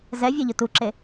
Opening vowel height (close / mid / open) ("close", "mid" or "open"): mid